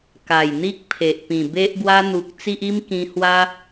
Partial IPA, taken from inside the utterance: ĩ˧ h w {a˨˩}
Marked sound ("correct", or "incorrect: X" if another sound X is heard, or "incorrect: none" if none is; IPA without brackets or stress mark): incorrect: a˦